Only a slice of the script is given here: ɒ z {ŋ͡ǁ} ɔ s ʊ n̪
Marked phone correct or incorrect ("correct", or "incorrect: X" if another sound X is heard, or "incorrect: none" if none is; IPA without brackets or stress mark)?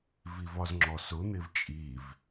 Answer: correct